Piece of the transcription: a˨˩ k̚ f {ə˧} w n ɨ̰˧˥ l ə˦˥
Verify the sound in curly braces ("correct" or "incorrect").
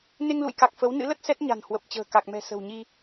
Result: incorrect